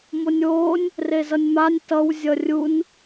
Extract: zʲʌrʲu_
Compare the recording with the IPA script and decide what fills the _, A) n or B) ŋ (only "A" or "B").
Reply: A